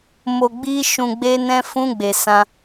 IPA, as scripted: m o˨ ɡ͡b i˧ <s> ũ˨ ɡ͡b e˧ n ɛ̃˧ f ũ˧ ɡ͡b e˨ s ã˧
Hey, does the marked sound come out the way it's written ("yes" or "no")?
no